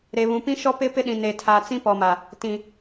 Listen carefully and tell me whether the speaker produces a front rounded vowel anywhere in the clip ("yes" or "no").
no